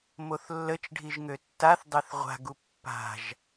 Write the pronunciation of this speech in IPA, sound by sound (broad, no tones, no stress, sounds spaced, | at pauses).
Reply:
m o θ lː ə t͡ʃ ɖʱ i ʒ ŋ ø tː a θ dˤ ɛ θ ʁʷ a̤ ɡ u pː a̤ ʒ